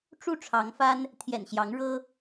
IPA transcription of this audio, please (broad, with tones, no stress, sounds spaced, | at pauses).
ʈ͡ʂ u˥˨ ʈ͡ʂʰ ɑ˨˦ ŋ f a˦ n | t̪ʰ j ɛ̰˨˩ n ɕ j ɑ˨˦ ŋ ɻ ɤ˦